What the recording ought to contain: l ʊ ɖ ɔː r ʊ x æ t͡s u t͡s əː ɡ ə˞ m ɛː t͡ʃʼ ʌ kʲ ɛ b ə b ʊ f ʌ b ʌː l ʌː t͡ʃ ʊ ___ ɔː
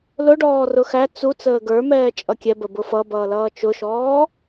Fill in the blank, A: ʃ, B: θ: A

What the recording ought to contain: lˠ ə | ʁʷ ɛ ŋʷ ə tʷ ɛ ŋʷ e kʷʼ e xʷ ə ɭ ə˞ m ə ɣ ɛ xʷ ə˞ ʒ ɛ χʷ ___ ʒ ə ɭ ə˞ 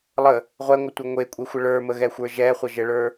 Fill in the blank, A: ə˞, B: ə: B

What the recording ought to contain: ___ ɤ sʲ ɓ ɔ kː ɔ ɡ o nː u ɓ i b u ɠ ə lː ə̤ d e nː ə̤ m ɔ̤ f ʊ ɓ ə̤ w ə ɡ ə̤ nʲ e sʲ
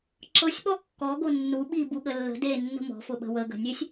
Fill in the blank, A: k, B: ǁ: B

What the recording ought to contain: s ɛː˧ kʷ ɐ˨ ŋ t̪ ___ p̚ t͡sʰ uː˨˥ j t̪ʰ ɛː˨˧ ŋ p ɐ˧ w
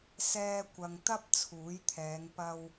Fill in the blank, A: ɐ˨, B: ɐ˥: B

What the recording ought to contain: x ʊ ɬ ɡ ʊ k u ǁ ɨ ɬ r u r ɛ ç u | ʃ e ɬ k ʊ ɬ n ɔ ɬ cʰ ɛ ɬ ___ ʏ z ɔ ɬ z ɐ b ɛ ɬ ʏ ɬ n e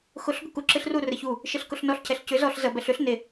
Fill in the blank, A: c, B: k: A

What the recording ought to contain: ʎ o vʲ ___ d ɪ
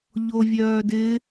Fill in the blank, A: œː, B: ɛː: A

